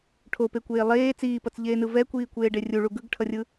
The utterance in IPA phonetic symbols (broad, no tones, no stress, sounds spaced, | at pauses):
ʈʰ o p e kʷ eː lˠ eː t͡s iː p ʌ t͡s ʎ eː n ɯ v ɛ kʷ iː kʷ eː ɖ e rʲ u ɭ u ɡ ɯ ɡ ʈʰ ʌ rʲ ɯ